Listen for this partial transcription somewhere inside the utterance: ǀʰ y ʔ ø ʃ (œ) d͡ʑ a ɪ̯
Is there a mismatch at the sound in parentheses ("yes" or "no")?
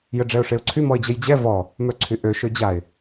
yes